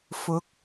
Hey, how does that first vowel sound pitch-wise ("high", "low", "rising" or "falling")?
rising